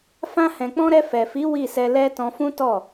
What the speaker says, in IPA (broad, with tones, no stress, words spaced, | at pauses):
fã˧hɛ̃˨k͡pɔ̃˧ ɾɛ˧fɛ˨fi˨˦ wi˦˨sɛ˧lɛ˦ tɔ̃˧fũ˦tɔ˦˨